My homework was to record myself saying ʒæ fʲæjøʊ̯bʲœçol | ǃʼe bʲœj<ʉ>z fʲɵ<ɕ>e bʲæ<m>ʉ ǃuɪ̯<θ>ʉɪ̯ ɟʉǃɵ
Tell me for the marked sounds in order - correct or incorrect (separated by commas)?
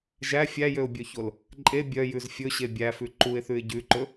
correct, correct, incorrect, correct